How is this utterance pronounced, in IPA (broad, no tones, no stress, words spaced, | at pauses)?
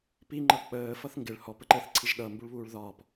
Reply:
piŋ͡ǃʌ k͡pəː fʌθŋɡɪɭ hɔpəǃəːθ ǀʰiʒɗʌmbuɭβuːɭ ðɒp